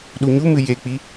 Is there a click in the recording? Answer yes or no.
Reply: no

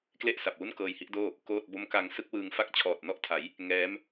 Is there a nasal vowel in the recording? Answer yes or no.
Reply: no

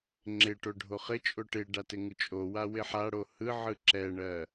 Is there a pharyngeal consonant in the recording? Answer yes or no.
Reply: yes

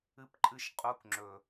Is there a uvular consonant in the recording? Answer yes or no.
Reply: yes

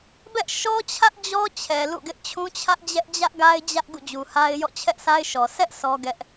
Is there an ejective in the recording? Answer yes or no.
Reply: no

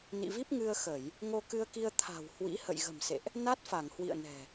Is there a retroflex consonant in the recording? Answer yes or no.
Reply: no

